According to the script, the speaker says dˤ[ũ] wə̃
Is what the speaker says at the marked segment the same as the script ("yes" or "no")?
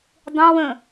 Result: no